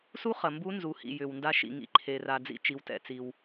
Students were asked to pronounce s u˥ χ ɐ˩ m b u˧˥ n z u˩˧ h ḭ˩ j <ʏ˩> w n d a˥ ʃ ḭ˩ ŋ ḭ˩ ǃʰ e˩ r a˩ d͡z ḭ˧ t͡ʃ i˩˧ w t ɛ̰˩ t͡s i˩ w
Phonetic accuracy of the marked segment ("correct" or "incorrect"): correct